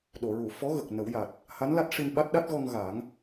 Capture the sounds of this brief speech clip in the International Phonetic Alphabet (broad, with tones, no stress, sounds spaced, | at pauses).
ɗ o˨˩˨ ɹ u˨˩˨ f ɔ˧˥ ɣ ə˨˩ k̚ n ə˨˩˦ w j a˨˩ t̚ | h a˧˥ n l a˦˥ t̚ ʂ i˧ n ɓ a˦˥ t̚ ɗ a˦˥ t̚ ɣ ɔ˧ ŋ ɣ a˨˩˦ ŋ